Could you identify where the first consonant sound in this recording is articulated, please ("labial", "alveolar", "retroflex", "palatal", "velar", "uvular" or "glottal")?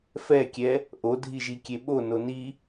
labial